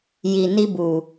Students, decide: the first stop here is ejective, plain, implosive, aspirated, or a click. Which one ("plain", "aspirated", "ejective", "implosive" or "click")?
plain